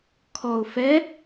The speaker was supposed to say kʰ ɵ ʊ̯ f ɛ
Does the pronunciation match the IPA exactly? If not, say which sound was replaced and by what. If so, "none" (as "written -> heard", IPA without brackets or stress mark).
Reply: ɵ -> ɔ